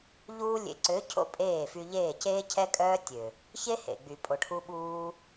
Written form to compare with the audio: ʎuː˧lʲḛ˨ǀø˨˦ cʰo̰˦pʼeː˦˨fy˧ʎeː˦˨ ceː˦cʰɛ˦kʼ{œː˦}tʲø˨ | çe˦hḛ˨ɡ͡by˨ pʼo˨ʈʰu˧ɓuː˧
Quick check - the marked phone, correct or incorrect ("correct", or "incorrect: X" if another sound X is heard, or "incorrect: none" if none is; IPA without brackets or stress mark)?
correct